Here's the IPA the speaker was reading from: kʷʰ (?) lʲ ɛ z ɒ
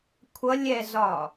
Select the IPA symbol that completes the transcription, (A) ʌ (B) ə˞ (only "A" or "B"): A